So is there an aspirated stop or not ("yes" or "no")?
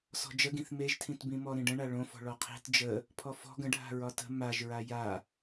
yes